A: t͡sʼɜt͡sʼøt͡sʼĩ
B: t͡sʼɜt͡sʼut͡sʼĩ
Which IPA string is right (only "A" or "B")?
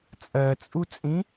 B